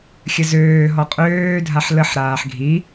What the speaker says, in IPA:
xʲ ə z øː ɦ ɔ qʼ øː dʱ a ħ l ə ħ ɾ aː ħ ɡʱ i

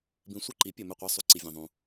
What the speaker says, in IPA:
b ĩ˧ sʷ e˥˧ ǃ i˨˥ pʲ ɐ˧ m ɵ˥˧ qʷ a˦˥ sˤ u˨˥ ǀ i˧ vʲ ẽ˧ ðˤ ũ˧

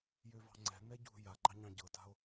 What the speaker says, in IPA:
j ø v ɑ̤ ŋ͡ǀ ɛ̤ n ɛ ɟ ṳ j a ɡ͡ǃ ɑ ɲ ɑ̃ ɟ ɤ t a̤ o̯

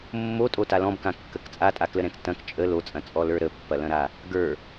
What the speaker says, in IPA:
mː o tʼ o t a l ɔ̃ b k ã kː ə k t͡sʼ a tʼ a k l ə ɾ ɛ̃ k t ɐ̃ k t͡ʃʼ ə l o t͡sʼ ɐ̃ t͡sʼ ɔ l ə˞ ɾ ə pː ɐ l ɐ̃ ɾ a | ɡ ə˞

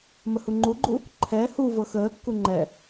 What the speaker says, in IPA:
m ə h u ŋ͡ǃ u ɡ͡ǃ u | ǃʰ ɛ h u v ɤ x əː kː u ŋ͡ǃ ɛ

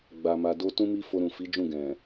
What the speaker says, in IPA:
ɡ͡b a˨ m a˨ d o˧ t ũ˦ m i˦ f o˧ ɾ ũ˨ f i˨˦ d͡ʒ ũ˦˨ ɡ ɛ̃˨

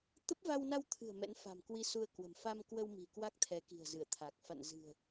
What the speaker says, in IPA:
t̪ ə˦˥ p̚ v a˧ w n a˧ w t̪ʰ ɨ̤˨˩ ə̯ m ɛ̰˧˥ n f a̤˨˩ m k w i˧ s u˧ ə̯ k w ə̤˨˩ m f a˧ m k w ə˧ w m i̤˨˩ k w a˦˥ k̚ t̪ʰ ɛ˨˦ k i̤˨˩ ə̯ z ɨ˧˩ ə̯ t̪ʰ a˨˩ k̚ f a̰˧˨ n z ɨ̤˨˩ ə̯

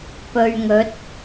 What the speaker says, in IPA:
p ɵ˧ ɥ ŋ ɵ˨˥ t̚

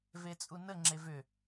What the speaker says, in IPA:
v e t͡sʼ u n ə ŋ͡ǁ e v ʏ

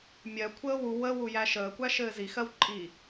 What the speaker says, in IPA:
mʲ ɜ kʷʰ əː w u w ə w u j æ ʃ əː kʷ æ ʃ ɘː z i x ɜ w ǃʼ i

